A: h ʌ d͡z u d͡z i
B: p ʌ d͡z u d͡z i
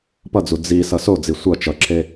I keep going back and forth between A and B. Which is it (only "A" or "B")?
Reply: B